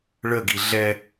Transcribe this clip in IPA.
ɭ ə ɡ i ɮ ɛ

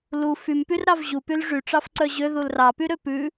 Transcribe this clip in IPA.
l u f y m p y r ɾ ɑ v ʑ u p y l ʐ y ʈ͡ʂ ɑ f ǀ œ ʑ ø ð u l r ɑ p y ɾ ø p ʉ

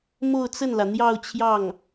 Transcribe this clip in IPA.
m o˥˧ ʊ̯ t͡s ə˥˩ n l ä˩ n̪ j ɑ˥˧ ʊ̯ t͡ɕʰ j ɑ˥˩ ŋ

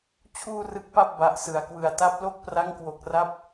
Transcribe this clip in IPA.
t͡ɕʰ uː˥˩ r ɯ˦˥ k̚ p a˥˩ p̚ b a˨˩ ʔ s ɯ˨˩ a̯ k w ɯ˨˩ a̯ t a˦˥ p̚ l o˥˩ k̚ p r a˦˥ ŋ k w o˨˩ k̚ r a˦˥ p̚

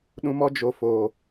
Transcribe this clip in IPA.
ɗ ũ˧ m ɔ˦ d͡ʒ o˧ f oː˨

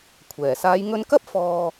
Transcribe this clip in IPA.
kʷʰ ɛː˨˩ s aː˨˧ j ŋ ɵ˧ n k ɐ˥ p̚ f ɔː˧

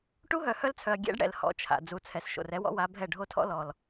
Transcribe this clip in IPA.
ʈ u˦ ɦ œ˨ h œ˦ l t͡sʰ œ˨ ɐ̯ ɡʲ ɛ̰˦ ɖ ɽ ɛ̰˨ l h ɔ̰˦ t͡ʃʰ a̰˨ d͡z u˨ t͡sʰ ɛ˨ s ʃ o̰˨ r ɛ˦ w ɔ̰˦ w a˨˦ bʱ ɛ˦˨ ɖʱ o˦ tʰ ɔ̰˦ l ɔ˨ l

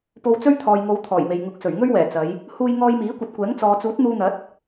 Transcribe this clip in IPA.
p o˧ w t͡s ɵ˥ ɥ t̪ʰ ɔː˨ j ŋ o˨˧ w t̪ʰ ɔː˨˩ j m e˨ j ŋ ʊ˨˥ k̚ s ɵ˨˩ ɥ ŋ ɵ˥ ɥ w ɛː˨˩ t͡s ɐ˨˧ j | h uː˧ j ŋ ɔː˧ j m iː˨˥ kʷ ɐ˨˥ t̚ kʷ ɛː˨˥ ŋ t͡s ɔː˨ t͡s uː˨˥ t̚ n̪ uː˧ n̪ ɐ˨˥ t̚

